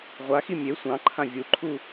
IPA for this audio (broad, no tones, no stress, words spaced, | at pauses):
ʁʷaxi mʲe sʷɑ̃ǃʰã vʲuǃʰu